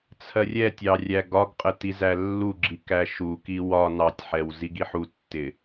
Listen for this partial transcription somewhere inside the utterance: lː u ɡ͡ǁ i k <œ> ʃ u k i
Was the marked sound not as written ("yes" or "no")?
yes